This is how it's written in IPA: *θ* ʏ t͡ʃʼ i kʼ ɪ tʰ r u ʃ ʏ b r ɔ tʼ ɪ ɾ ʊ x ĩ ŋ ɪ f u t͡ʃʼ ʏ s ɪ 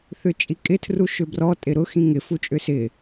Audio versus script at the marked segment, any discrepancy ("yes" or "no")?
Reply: no